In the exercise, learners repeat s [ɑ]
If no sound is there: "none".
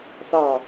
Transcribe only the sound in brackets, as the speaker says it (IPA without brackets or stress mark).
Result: ɑ